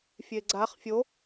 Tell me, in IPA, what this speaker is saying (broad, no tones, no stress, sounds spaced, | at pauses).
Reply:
fʲ e ɡ͡ǀ a χ fʲ o